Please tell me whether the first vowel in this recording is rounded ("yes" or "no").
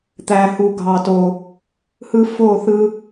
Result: no